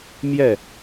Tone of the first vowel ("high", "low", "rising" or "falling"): falling